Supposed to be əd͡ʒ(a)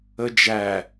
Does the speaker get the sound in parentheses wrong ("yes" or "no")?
yes